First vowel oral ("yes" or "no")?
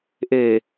yes